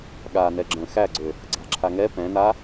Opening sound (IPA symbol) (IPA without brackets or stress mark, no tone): ɠ